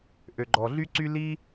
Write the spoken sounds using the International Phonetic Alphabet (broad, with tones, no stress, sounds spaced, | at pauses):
ʔ ø˨ ɡ͡ǃ ɔ˨ ɮ y˦ ǀ y˦ l i˦